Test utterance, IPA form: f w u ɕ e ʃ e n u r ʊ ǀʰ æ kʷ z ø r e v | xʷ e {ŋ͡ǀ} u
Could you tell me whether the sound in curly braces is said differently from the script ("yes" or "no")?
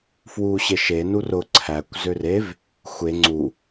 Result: no